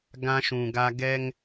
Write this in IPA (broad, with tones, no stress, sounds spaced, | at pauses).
ɡ ã˦ ʃ ũ˨ ɡ a˦ ɡ ɛ˦ ŋ